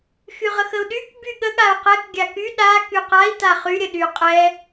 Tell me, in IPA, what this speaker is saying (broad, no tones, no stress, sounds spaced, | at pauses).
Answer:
x y ʁ ə x ə u̯ ɗ y k b y ɠ ə ɠ a u̯ q ɛ k ɡʲ a k y ɗ a k y q a i̯ t a χ y ɾʲ ə ɗ y qʼ ɛ